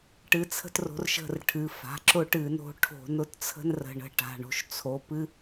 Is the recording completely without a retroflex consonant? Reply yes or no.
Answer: no